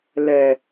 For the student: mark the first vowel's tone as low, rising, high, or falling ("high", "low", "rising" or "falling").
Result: low